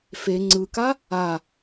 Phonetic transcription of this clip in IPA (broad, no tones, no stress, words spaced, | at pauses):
fe ŋ͡ǀɯka | a